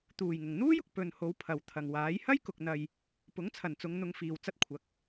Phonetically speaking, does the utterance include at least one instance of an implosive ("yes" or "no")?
no